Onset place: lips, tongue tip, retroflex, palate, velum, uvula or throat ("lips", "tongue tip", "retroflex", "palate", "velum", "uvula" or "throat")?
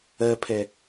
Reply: lips